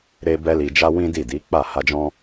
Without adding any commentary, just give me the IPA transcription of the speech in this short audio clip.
ɾ e˦ b ɛ˦ l i˧ d͡ʒ a˦ w ĩ˦ d i˦˨ d i˨˦ k͡p a˦˨ h a˧ d͡ʒ ɔ̃˦

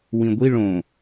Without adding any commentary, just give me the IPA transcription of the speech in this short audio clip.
w ĩ ɡʷ i ɭ õ

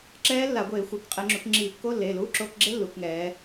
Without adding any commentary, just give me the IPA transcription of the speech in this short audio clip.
ǁ ɛː˦˥ lː a˧˩˧ ɡʷ eː˧˩˧ xʷ ɛ˩˧ k qʼ ɛ˧˩˧ ŋ͡ǁ u˩˧ k ŋ͡ǁ iː˧˩˧ kː o˧˥˧ lː eː˩˧˩ l uː˧˥˧ ǁ o˧˥˧ k ɡ͡ǁ e˦˥ lː u˩˧ k ŋ ɛː˩˧

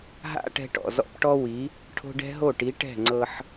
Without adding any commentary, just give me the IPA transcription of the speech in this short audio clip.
ɦ a̰˦ ʈ ɛ̤˧ ʈ ɔ̰˨ z ɔ̰˧ p ʈ ɔ˦ w i˨˦ | ʈʰ o̤˧ ɖ ɛ̤˦ ɦ o˦˨ ʈ i˨˦ ʈ ɛ̤˦˨ ŋ͡ǀ ɤ˧ ħ

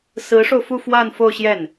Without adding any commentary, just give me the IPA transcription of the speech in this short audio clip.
s ɹ̩˧˥ ʂ o˧ ʊ̯ f u˥˧ f w a˥˧ n f o˥˧ ʊ̯ ɕ j ɛ˥˩ n

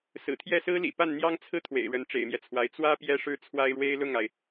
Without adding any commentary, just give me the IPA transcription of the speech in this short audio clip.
s ɹ̩˨˩ t̪ʰ j ɛ˥˩ s ɹ̩˥ l ḭ˨˩ p a˥˩ n n̪ j ɑ˥ ŋ t͡sʰ ɹ̩˥ t̪ʰ w ḛ˨˩ ɪ̯ ɻ ə˧˥ n ʈ͡ʂ ḛ˨˩ ɪ̯ m j ɛ˦ t͡sʰ w a˧˥ ɪ̯ t͡s w ä˥ p j ɛ˥ ʂ ɻ̩˥ t͡sʰ w a˥ ɪ̯ ɻ w e˥ ɪ̯ l ʊ˥˩ ŋ a˩ ɪ̯

